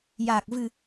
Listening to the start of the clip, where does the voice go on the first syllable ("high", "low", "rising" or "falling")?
low